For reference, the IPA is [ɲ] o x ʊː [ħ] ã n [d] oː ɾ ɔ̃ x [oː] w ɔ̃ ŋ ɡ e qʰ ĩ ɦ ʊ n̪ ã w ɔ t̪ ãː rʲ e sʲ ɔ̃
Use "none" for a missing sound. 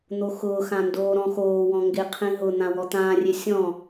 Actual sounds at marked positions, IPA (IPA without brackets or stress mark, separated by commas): n̪, x, d, oː